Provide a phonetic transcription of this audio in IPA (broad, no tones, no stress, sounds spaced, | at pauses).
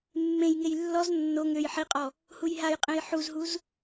mː ẽ j ŋ e j lː ɔ z nː o ŋ ø j ħ i qʼ ɔ | h u j ɦ a j qʼ ẽ j ħ u z ɦ u z